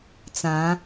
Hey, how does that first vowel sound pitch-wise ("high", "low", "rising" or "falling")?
rising